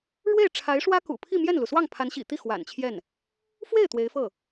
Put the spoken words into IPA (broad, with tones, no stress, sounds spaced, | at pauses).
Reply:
ɻ w e˥˩ ɪ̯ ʈ͡ʂʰ a˧˥ ɪ̯ ʂ w ä˥ k ṵ˨˩ pʰ i˥˧ m j ɛ˥˩ n l u˩ s w ɑ˥˩ ŋ pʰ a˧˥ n ɕ ḭ˨˩ t̪ i˥˩ x w a̰˨˩ n t͡ɕʰ j ɛ˥˩ n | f w e˥˩ ɪ̯ t̪ w e˧˥ ɪ̯ f ɤ˥˩